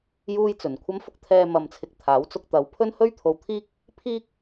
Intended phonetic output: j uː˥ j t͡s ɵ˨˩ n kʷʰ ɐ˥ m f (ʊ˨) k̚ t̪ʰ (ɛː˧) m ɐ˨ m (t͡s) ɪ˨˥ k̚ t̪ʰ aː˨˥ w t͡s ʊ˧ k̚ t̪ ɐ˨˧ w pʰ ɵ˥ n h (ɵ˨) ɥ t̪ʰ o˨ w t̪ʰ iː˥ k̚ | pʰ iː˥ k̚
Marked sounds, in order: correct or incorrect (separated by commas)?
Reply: incorrect, correct, incorrect, incorrect